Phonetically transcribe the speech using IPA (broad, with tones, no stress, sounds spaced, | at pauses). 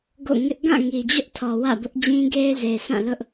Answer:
ɡ o̰˦˨ ŋ ɪ˦ ʔ ɡ ã˦˨ ŋ i˨ d͡ʑ ʊ˦ ʔ tʰ ɔ˨ w ä̰˦˨ b ʊ˦ ʔ d͡ʑ ĩ˦ ɡ e˦ ɪ̯ z e˨ sʰ ã˦˨ l ʊ˦ ʔ